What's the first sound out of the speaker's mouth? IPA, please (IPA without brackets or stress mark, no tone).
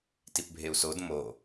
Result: t